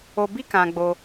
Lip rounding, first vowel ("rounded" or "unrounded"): rounded